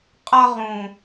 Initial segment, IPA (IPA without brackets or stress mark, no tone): qʼ